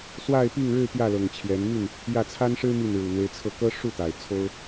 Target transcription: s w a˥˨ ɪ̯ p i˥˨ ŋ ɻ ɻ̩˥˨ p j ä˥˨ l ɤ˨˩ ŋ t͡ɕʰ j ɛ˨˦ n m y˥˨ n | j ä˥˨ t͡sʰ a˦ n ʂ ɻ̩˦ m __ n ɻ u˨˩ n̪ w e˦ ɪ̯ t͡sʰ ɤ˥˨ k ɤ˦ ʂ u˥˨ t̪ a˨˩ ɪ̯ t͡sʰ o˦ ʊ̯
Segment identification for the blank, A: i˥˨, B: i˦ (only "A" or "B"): A